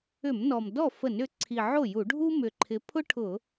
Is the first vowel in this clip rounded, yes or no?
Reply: yes